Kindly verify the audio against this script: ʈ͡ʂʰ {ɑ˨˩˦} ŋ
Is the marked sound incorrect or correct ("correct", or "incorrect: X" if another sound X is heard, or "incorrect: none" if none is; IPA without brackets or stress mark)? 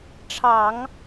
correct